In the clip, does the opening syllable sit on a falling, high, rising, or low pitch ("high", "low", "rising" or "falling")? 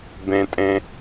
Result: high